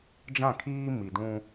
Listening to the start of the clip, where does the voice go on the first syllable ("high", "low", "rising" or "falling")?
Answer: falling